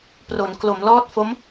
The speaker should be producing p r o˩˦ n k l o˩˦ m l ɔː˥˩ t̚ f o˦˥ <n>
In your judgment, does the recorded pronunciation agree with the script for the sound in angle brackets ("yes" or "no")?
no